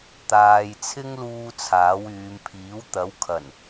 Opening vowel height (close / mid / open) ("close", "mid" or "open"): open